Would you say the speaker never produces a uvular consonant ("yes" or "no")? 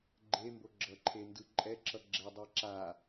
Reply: yes